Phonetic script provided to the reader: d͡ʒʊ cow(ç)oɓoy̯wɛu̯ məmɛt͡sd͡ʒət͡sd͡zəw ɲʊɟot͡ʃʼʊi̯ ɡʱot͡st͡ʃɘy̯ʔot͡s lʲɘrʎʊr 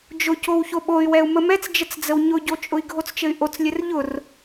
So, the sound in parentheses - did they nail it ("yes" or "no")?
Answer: yes